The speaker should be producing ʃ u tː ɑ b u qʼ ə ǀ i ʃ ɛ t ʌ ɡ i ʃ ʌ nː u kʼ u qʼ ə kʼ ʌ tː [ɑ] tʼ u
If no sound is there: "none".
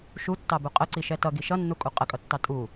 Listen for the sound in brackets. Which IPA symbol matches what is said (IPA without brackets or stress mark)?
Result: ɑ